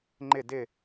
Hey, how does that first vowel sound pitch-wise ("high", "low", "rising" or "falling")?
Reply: falling